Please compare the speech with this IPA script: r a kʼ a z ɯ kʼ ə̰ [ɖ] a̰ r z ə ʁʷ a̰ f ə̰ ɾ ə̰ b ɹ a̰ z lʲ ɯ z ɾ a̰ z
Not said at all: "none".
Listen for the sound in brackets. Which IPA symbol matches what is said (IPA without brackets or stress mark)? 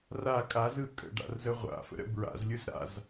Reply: ɖ